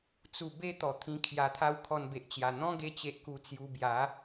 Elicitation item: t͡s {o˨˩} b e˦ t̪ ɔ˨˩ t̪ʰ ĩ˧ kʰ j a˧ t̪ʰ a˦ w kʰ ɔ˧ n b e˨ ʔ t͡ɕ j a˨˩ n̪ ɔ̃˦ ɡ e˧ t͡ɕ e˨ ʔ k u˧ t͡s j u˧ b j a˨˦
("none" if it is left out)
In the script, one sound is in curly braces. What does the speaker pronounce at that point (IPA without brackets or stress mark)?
u˨˩